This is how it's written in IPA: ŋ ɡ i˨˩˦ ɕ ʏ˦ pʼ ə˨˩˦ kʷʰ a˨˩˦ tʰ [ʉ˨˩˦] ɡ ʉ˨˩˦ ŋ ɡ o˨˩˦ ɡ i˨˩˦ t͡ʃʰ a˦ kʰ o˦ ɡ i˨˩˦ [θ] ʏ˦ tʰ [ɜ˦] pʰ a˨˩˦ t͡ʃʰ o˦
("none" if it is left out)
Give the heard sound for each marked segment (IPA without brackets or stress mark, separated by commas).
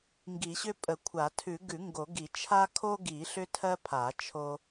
ʉ˨˩˦, ɬ, ɜ˦